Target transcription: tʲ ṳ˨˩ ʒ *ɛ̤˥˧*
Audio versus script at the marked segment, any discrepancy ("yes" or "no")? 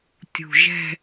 no